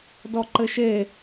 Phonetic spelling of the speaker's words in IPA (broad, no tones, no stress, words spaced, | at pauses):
dɔǃɘʃe